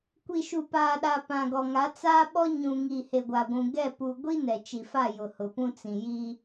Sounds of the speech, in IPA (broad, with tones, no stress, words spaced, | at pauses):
kʷi˨ʃu˨paː˨ɗa˨ pã˨ɡɔ˨ŋa˨˦ t͡saː˦ɓɔ˦ ɲũ˨ ŋiː˨he˨ɡʷa˨ɡʷũ˨ ɡɛ˦˨ pu˨ɡʷi˦ nɛ˨t͡ʃi˨fa˦˨jʊ˨ hʊ˨pũ˦t͡sĩ˨ ji˦